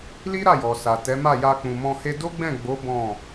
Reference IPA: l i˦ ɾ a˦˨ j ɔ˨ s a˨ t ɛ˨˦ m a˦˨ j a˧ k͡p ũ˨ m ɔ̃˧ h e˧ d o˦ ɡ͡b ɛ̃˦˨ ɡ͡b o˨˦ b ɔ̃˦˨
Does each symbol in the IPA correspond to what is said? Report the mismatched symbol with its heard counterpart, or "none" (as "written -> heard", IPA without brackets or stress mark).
none